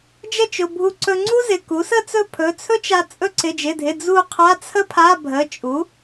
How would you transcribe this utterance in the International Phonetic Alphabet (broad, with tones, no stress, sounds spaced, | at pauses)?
d͡ʒ ə˥˨ t͡ʃ ʊ˩˧˩ bʱ u˧ ǀ ɵ˧ ŋ͡ǀ u˥ z ɪ˩˧˩ k u˩˥ s ə˥˨ t͡s ɵ˥˨ pʰ ɵ˩˧˩ t͡sʰ ɵ˥ t͡ʃ a˧ t͡sʼ ɵ˧ ǀ ɪ˩˧˩ d͡ʒ ɪ˩˧˩ dʱ ɪ˩˧˩ d͡z u˥˨ qʰ a˧˥˧ t͡sʰ ə˥ pʰ a˧˥˧ bʱ ə˩˧˩ t͡ʃʼ u˩˥